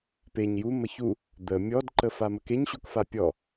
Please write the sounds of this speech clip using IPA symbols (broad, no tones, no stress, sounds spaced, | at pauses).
p e ɲ j u m ə ç u | d̪ ə mʲ ɔ d ǃ ə f a m ə k e ɲ ɕ u k f a pʲ ɔ